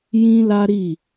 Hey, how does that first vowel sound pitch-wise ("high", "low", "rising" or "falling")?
high